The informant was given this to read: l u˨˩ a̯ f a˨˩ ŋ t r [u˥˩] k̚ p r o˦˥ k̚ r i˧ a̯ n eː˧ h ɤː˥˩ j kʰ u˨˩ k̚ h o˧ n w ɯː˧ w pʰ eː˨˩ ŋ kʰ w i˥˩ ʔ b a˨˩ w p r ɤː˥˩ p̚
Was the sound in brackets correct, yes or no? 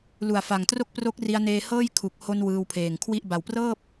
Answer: no